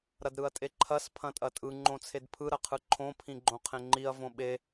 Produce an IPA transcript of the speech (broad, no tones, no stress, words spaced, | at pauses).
ɾɐdɾɯɐ̯tʼeǃʰɐs pʰɐ̃tʼɐtʼɯ ŋ͡ǃõt͡sʰedpʰɯ ɾɐqʰɯǃʰõ pʰĩɡ͡ǃõqʰẽŋ͡ǃiɐ̯ võɓe